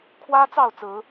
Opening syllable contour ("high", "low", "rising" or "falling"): high